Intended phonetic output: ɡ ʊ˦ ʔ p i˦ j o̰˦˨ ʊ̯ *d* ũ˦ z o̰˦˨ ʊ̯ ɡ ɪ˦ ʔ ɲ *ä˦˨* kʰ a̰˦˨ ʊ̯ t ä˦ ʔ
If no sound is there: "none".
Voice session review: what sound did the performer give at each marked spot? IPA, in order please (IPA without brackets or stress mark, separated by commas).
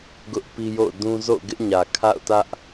d, ä˨